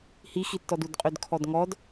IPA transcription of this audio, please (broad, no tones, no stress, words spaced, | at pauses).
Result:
hixitːɔd udqʼødkʰɔdŋɔd